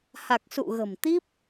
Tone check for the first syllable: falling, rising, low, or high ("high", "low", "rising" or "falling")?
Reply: low